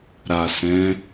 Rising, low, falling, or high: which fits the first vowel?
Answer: low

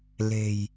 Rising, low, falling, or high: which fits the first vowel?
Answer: low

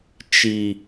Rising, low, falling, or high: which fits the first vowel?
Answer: low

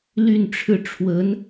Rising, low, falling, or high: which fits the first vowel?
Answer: falling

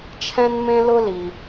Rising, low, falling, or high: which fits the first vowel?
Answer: high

